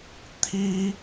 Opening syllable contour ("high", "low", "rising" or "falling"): high